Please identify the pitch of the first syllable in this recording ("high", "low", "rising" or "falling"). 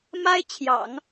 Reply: high